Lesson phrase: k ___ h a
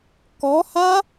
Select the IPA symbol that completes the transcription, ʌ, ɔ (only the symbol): ɔ